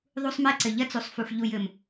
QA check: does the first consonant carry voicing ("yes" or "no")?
yes